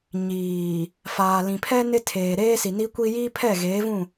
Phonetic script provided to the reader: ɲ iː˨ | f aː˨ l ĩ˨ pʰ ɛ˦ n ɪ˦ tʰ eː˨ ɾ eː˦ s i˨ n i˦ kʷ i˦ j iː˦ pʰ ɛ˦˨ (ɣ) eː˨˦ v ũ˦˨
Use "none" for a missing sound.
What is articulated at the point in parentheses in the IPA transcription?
ɣ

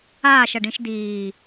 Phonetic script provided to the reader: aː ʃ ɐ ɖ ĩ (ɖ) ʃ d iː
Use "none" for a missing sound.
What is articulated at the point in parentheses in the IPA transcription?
none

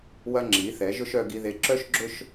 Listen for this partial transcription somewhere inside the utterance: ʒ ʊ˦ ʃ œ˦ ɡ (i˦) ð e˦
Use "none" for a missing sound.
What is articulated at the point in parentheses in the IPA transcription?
i˦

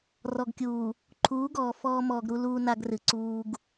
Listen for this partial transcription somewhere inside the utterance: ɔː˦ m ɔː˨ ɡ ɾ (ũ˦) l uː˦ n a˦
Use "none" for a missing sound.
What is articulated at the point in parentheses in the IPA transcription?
u˦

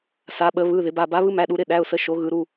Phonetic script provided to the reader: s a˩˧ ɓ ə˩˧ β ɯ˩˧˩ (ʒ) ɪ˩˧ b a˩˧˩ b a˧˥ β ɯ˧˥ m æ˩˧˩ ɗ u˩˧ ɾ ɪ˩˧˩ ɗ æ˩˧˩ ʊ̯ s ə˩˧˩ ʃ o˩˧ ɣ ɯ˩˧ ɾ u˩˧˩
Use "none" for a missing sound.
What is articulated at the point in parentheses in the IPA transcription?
ð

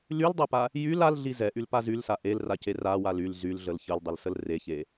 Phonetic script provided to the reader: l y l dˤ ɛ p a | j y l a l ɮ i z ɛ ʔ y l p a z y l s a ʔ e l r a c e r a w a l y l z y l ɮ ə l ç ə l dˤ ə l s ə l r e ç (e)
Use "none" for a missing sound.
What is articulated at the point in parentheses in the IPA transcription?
e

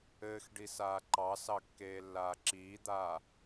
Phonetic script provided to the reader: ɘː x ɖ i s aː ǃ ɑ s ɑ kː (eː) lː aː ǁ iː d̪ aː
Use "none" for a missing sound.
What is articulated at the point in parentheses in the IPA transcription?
eː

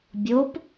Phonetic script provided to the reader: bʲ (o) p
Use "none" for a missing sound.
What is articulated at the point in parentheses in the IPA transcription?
o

